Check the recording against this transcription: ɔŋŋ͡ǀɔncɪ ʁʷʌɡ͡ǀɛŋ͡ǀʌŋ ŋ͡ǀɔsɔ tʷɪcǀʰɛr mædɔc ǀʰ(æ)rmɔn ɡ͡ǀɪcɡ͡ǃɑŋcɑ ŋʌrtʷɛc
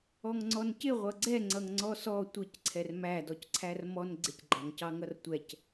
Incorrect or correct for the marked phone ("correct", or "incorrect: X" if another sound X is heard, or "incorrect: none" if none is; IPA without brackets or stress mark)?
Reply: correct